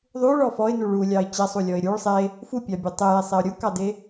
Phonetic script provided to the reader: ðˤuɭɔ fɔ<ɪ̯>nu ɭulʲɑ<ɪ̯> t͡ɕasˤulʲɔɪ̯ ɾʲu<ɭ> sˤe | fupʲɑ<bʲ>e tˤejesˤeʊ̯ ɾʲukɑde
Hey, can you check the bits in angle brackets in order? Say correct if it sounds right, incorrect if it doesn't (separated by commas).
correct, correct, correct, correct